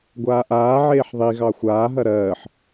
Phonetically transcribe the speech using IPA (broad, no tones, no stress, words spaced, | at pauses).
ɡʷaːʔaːʕeːħ ðˤi ɣɑxʷaːɦɐ ɾɜːħ